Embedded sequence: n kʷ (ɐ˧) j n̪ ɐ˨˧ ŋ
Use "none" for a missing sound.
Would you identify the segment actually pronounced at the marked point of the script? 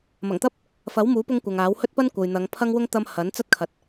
ɐ˨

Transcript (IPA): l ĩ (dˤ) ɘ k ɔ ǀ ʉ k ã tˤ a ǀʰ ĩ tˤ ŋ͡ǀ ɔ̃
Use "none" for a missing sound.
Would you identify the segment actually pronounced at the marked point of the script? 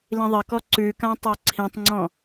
ðˤ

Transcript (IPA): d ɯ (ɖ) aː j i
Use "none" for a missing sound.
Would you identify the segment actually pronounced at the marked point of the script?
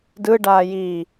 ɖ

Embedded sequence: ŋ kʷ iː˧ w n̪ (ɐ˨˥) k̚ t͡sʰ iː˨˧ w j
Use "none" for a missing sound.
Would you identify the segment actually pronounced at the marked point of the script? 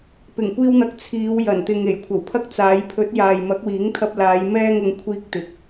ɐ˨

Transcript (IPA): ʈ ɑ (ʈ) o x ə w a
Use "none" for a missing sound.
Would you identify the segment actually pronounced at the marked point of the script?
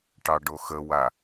ɖ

